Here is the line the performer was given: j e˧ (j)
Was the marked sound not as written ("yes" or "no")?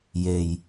no